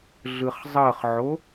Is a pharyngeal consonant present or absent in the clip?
present